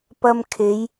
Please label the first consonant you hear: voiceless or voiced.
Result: voiceless